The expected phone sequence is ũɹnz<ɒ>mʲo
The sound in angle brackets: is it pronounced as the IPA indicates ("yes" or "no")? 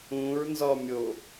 yes